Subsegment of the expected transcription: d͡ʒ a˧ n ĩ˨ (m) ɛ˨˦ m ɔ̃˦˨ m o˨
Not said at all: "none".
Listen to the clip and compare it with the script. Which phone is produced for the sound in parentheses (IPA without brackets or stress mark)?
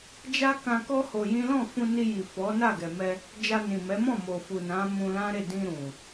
m